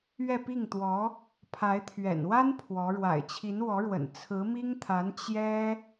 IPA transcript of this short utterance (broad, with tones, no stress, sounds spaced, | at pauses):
ɥ ɛ˥˧ p i˥˩ ŋ t̪ w ɔ˧˥ | pʰ a˧˥ ɪ̯ t̪ʰ ɥ ɛ̰˨˩ n w a˥ n pʰ w ɔ˧˥ ɻ w a̰˨˩ ɪ̯ t͡ɕʰ i˧˥ n w ɔ˧˥ ɻ w ə̰˨˩ n t͡sʰ ɹ̩˧˥ m i˥ ŋ t̪ʰ a˧˥ n t͡ɕ j ɛ˥